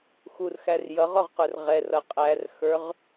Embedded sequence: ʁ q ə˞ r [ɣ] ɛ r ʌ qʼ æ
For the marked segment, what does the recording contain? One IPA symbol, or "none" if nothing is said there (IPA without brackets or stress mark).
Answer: ʁ